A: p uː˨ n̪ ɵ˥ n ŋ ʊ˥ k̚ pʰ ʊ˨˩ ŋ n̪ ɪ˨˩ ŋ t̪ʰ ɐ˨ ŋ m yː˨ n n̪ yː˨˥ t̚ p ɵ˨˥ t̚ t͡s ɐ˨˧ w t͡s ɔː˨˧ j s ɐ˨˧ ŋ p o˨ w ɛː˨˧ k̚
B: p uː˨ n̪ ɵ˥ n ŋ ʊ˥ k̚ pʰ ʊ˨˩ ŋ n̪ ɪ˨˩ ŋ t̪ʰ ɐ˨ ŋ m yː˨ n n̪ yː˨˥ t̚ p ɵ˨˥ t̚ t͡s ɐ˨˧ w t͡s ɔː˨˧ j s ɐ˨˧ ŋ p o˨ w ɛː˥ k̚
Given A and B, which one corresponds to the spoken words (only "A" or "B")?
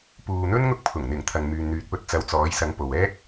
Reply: B